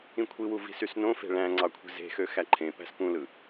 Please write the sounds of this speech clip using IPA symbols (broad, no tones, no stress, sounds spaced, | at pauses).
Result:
ĩ kʷʰ i w u v i̤ s y s n õ f e̤ ɭ æ̃ ŋ͡ǀ ɑ kʷʰ i̤ z e̤ x ø x æ ǃʰ ẽ p æ̤ s p ũ l ɯ